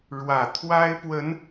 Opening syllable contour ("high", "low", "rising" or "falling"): low